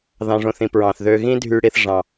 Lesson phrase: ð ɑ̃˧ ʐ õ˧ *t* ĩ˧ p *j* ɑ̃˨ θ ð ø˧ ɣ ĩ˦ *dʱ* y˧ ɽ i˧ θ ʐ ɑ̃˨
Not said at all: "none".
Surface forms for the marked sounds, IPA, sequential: θ, ɹ, dʱ

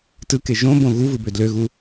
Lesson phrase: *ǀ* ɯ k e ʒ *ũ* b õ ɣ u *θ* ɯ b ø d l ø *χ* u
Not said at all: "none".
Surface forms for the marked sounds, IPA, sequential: t, õ, v, ɣ

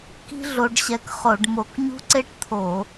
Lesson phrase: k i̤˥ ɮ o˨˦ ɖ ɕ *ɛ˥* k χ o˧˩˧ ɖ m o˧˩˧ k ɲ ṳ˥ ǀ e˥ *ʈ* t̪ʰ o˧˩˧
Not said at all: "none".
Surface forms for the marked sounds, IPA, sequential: ɛ˨˦, ʈ

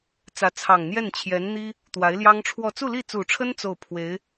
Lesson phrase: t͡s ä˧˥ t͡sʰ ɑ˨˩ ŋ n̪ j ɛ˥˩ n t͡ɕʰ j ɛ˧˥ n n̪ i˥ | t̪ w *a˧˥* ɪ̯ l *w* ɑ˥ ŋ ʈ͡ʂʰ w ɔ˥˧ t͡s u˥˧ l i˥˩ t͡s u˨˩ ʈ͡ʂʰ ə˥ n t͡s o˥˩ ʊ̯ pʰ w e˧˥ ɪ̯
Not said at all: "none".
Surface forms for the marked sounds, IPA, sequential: a˧˥, j

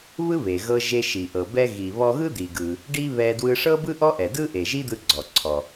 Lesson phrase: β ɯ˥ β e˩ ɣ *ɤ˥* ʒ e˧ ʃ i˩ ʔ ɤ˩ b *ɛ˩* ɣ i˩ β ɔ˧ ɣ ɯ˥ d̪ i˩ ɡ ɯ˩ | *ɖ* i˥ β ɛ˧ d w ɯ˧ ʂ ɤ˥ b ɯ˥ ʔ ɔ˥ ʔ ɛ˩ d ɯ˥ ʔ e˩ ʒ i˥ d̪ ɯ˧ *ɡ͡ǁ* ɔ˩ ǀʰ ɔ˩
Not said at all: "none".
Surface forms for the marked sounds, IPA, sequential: ɤ˧, ɛ˧, ɖ, ɡ͡ǀ

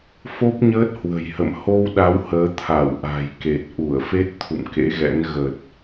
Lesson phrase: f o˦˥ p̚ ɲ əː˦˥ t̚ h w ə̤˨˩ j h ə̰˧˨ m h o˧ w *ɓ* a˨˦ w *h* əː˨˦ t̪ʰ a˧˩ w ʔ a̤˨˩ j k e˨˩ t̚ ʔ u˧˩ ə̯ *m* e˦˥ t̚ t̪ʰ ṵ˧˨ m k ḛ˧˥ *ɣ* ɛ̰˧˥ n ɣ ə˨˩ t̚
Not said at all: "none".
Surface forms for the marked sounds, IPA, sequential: ɗ, h, f, ɣ

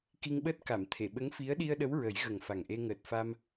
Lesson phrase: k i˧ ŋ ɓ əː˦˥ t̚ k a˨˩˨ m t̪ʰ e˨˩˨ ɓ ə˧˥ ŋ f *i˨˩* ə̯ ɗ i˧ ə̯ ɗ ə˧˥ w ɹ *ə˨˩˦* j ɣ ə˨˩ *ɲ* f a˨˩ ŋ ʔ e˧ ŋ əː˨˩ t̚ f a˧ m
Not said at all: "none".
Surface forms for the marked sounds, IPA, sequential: i˧˥, ə˨˩˦, ŋ

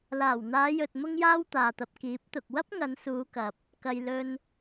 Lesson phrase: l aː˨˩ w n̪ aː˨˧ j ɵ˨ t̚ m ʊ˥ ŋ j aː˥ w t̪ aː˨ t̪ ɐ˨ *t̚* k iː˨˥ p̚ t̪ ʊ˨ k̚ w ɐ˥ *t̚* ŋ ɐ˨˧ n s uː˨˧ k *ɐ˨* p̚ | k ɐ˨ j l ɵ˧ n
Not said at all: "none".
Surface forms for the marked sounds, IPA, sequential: p̚, p̚, ɐ˨

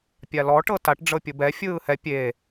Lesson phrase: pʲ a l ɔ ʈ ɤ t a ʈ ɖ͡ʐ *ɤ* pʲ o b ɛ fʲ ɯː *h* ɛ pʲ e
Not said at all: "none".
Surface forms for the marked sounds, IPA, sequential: ɤ, h

